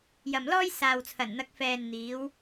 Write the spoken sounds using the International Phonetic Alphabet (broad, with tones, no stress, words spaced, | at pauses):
jɐ˨mlɔː˥j saː˨wt͡sʰɐ˨˩nn̪ɐ˨˥k̚fɛː˨n n̪iː˨˧w